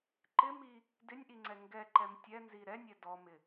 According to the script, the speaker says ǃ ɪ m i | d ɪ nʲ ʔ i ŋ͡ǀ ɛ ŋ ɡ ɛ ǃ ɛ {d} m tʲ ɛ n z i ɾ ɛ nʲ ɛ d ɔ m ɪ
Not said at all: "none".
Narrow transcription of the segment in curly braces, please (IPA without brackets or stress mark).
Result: none